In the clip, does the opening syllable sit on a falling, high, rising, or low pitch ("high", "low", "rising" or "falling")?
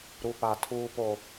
low